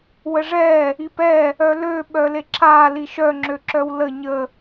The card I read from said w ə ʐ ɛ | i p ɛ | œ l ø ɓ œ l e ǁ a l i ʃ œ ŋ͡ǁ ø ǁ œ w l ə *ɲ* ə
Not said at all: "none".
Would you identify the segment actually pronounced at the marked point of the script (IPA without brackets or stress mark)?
ɲ